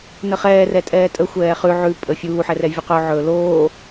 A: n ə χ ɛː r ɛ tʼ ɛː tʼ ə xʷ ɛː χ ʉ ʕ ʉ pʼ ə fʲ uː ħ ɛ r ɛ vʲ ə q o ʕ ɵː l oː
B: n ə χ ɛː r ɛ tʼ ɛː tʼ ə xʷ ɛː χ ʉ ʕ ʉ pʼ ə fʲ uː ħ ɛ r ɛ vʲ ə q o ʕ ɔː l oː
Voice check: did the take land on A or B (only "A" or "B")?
A